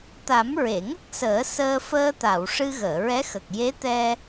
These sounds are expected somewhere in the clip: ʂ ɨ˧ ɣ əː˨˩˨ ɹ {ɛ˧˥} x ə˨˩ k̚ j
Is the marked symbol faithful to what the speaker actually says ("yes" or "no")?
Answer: yes